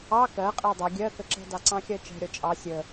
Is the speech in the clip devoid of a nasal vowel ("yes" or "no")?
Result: no